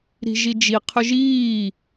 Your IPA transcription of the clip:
ɾ i̤ ʒ i d͡ʒ i qʰ ɵ ʒ iː

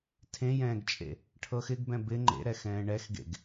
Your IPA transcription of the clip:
tʰ ẽ j ɛ̃ː ɡ t͡ʃʼ ḛ | ʈʰ ɤ x ɪ ɡ b ɛ̃ b ɪ ŋ͡ǃ ḛ ɾ ɛ x ɛ̃ː ɳ ɛ x ɡ ḛ ɡ

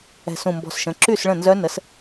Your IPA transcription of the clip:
ɛ̤˧˩ s ũ˧˩ m b ɔ̤˧˩ s ʃ ə̃˩˧˩ ǁ y˥˩ s ɭ ə̃˥˩ n z œ˧˥ n ə˩˥ s

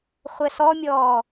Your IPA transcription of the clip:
χʷ ɛ s ɔ mʲ ɔː

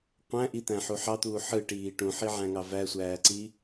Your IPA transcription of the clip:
qʷ æ̃ ʔ i t̪ æ̃ ħ u ħ ɑ t̪ uː ħ ɯ ʈ iː ʈ ũ ħ i ʕ æ̃ ŋ ɑ v æ sʷ æː ǀ i

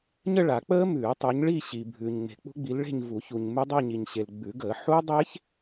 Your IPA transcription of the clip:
ɲ ə˥˧ ɭ a˨˩˦ k͡p əː˦˥ m ʉː˨˩˦ tˤ ʉ˨˦ ɲ ɭ i˥˧ ɕ i˨ bʱ ʉː˨ ɲ ŋ͡m e̤˨ k͡p ṳ˦˥ ɡ͡b i˨˦ l ɭ e̤˥˧ ɲ v u˨˩˦ ç u˨ ɲ m ʉ˦˥ dˤ e˥˧ ɲ i˨ ɲ ɕ e˨ l ɡ͡b ʉ˨˩˦ ɡ əː˨˩˦ ħ u˦˥ dˤ e˦˥ ç

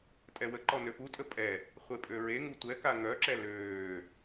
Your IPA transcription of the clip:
tʼ ɛ w ə ǃ ɔ n ø p u tʼ ə pʼ ɛ | χʷ e pʼ ø ɹ e ŋ u tʷ ɛ k a ŋ œ ǁ ɛ l øː

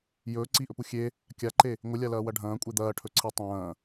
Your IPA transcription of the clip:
j ɵː ǀ i ʔ ɵ p u xʲ e | kʲ a ǃ e | ŋʷ ɨ lʲ a l ɐː w ɐ ɖʱ ɐ̃ː kʷʼ e d̪ ɐː ʈʰ ɵ ǀʰ i tˤ ɐ̃ː

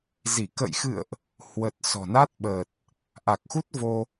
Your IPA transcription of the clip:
z i˧˩ k ə̰˧˨ j x ɨ̰˧˨ ə̯ ʔ | h w ə˨˩ t̚ s ɔ̤˨˩ n a˦˥ t̚ ɓ əː˨˩ t̚ | ʔ a˨˩ k̚ x u˦˥ t̚ v o˧

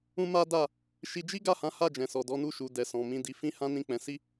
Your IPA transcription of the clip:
ũ˦ m a˦ d a˦˨ | ʃ i˧ d͡ʒ i˦ ɡ a˦˨ h ã˨˦ h a˦˨ d͡ʒ ɛ̃˨ s ɔ˨ d ɔ˨˦ n u˦˨ ʃ u˨ d ɛ˨ s ɔ̃˨ m ĩ˨ d i˨ f ĩ˧ h ã˦ n ĩ˦˨ k͡p ɛ̃˨˦ s i˦˨

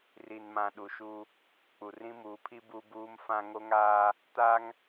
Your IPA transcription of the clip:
r i˨ n m ã˨ ɗ u˨ ʃ u˦ | k͡p u˨ r ĩ˦ m uː˨˦ pʰ i˦ b u˦ b uː˦ m f ã˦ ŋ o˦ ŋ aː˦ | t a˦ ŋ

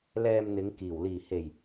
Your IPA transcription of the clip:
l ɛː˧ m n̪ ɪ˨˧ ŋ k iː˨˩ w l iː˨˩ h e˨˩ j

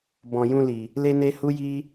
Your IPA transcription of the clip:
b ɔ̃˨ j ũ˧ l i˨ | l e˦ n e˦ h u˦ j i˦

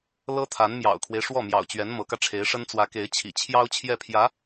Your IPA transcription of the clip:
l ɤ˥ t̪ʰ a˧˥ n m j ɑ̰˨˩ ʊ̯ kʰ w e˦ ɪ̯ ʂ w ɔ˥˩ m j ɑ̰˨˩ ʊ̯ t͡ɕ ɥ ɛ˧˥ n m ɤ˧˥ k ä˧ ʈ͡ʂʰ e˧˥ ɪ̯ ʂ ə˥ n t͡s w ä˧˥ k e˧˥ ɪ̯ t͡ɕʰ ḭ˨˩ t͡ɕʰ j ɑ˥ ʊ̯ t͡ɕʰ j ɛ˥˩ pʰ j ä˧˥

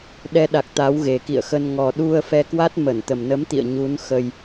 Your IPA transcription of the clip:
ɗ ɛ˧ ɗ a˨˩ k̚ t̪ a˨˦ w ɣ e˨˩ k ḭ˧˨ ə̯ x ə˧ n ŋ ɔ˨˩ ɗ u˧ ə̯ f ɛ˧ k w a˦˥ t̚ m ə˧˩ n t̪ ə˨˩ m n ə˨˦ m t̪ ḭ˧˨ ə̯ ɲ u˨˦ n x ə˧ j

